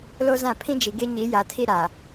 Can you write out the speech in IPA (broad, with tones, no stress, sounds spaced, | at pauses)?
l o˦ z ã˦˨ pʰ ĩ˦ d͡ʒ i˨ ɡ e˦ ɲ i˨˦ j a˨ tʰ i˦ ɾ a˨